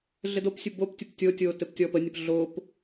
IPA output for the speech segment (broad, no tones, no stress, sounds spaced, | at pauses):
ɮ ɘ d o p sʲ ɘ b o p tʲ ə p tʲ o tʲ oː t ɘ p tʲ ɔ p ə nʲ ə p ɮ oː p